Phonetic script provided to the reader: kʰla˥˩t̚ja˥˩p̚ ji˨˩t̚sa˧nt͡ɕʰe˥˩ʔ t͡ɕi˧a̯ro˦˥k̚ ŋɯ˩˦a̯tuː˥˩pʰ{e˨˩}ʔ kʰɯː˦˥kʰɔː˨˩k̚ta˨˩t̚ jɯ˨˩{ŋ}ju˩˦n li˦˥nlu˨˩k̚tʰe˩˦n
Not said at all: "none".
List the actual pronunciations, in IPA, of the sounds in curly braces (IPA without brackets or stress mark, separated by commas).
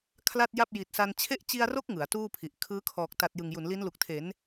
i˨˩, ŋ